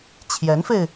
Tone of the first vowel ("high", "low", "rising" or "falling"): rising